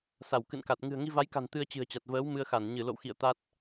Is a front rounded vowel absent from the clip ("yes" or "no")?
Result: yes